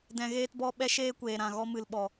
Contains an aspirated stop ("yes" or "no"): no